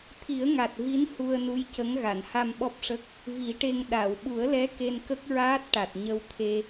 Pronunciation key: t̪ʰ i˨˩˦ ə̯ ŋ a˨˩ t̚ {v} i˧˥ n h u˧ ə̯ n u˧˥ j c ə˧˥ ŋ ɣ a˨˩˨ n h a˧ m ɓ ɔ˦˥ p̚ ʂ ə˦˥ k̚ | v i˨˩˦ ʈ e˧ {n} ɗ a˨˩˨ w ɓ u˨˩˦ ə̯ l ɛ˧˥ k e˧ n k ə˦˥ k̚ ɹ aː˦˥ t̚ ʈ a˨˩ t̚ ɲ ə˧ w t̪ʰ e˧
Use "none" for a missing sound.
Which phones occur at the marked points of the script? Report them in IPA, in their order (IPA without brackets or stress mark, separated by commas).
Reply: v, ŋ